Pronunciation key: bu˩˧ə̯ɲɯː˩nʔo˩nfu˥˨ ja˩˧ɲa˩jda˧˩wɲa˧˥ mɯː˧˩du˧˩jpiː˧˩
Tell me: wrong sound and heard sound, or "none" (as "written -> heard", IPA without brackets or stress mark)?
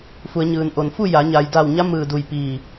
b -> f